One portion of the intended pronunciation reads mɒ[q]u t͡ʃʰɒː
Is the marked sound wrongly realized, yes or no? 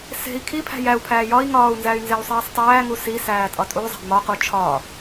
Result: no